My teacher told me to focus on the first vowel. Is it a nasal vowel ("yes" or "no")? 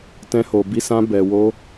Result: yes